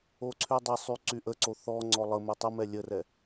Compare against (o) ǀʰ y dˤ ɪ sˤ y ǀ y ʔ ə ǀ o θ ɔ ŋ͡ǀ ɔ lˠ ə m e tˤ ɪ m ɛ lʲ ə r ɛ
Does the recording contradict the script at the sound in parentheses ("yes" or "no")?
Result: no